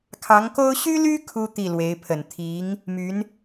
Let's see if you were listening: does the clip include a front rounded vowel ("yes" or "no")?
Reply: yes